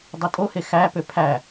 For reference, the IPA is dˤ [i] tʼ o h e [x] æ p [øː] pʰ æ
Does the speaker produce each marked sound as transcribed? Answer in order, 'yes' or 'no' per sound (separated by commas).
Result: no, yes, no